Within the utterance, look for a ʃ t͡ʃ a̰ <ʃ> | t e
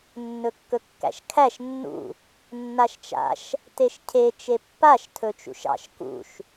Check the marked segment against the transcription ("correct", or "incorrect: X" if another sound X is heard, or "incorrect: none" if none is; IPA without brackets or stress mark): correct